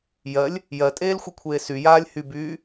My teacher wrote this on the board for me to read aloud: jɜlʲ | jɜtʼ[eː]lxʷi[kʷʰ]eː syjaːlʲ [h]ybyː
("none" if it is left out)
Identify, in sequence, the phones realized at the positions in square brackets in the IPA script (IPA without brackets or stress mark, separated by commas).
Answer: eː, kʷʰ, h